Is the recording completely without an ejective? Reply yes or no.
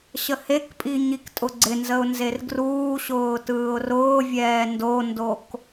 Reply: no